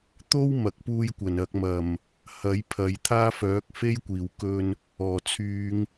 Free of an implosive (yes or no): yes